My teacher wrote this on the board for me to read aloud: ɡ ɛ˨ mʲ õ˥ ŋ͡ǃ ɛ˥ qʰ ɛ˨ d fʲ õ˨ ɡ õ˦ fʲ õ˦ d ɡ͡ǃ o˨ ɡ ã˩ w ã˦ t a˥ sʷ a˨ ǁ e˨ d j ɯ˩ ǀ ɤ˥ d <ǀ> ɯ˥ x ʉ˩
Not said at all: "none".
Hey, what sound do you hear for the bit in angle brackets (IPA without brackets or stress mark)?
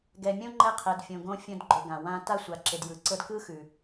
k